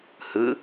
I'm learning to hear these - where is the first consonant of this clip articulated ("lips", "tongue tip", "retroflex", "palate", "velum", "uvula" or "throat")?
throat